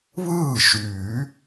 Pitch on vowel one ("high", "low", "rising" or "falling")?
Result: falling